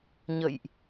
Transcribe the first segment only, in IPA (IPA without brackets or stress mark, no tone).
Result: ɲ